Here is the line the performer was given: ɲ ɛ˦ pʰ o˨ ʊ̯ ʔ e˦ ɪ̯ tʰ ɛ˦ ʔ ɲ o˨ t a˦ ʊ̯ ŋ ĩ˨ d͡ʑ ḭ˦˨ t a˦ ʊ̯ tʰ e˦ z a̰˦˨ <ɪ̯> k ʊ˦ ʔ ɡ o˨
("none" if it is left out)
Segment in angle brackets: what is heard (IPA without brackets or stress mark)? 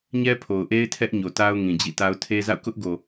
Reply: ʊ̯